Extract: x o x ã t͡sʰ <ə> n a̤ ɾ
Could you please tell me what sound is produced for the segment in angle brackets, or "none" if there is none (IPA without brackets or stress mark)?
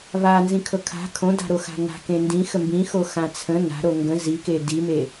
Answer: ə̃